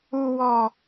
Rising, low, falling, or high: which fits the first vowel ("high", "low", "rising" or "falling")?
high